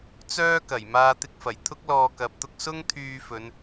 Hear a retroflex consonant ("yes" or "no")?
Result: no